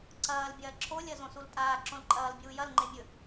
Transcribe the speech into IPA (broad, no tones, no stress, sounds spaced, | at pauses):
ǀ ɐː l bʲ ɐː ǁʰ o lʲ ɐ z õ s u l tʼ aː ǁ õ l ǃʼ ɐː l bʲ uː j ɐ l ŋ͡ǃ e mʲ ɵ